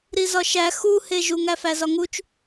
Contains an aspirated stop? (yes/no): no